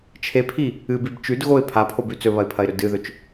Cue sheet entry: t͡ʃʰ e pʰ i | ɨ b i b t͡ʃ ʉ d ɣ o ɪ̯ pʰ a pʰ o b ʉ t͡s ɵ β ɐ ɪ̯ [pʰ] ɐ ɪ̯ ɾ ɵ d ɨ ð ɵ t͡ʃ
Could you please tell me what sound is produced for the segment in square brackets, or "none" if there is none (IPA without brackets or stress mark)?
pʰ